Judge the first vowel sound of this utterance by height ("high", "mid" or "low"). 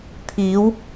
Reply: high